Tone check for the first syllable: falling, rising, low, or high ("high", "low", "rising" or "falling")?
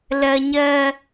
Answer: high